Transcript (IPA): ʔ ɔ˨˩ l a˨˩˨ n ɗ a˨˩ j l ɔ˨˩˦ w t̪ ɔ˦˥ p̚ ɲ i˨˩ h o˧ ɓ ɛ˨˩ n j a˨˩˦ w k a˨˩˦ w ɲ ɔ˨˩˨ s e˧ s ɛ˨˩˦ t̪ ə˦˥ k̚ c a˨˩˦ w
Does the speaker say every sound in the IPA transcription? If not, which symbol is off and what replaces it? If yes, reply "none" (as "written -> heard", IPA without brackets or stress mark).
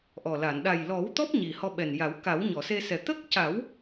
o˧ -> ɔ˧